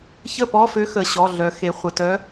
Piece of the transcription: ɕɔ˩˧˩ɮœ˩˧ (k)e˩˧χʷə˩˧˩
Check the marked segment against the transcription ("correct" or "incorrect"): incorrect